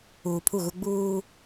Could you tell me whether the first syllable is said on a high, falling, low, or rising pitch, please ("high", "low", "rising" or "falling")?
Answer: low